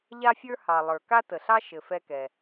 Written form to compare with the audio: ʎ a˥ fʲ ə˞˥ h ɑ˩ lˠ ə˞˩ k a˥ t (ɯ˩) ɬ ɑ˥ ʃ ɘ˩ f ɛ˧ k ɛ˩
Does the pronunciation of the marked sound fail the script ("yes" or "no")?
yes